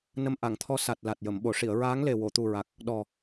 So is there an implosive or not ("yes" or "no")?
yes